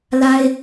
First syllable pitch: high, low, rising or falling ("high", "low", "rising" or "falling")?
high